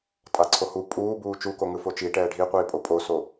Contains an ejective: yes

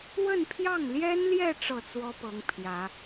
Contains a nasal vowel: no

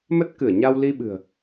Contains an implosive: yes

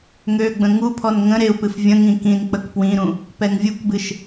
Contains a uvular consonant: no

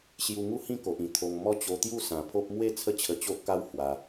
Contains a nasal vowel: yes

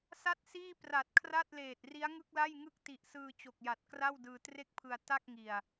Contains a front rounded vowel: no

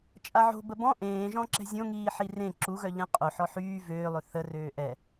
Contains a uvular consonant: yes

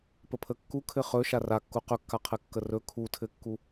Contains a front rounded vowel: no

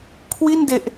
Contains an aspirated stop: yes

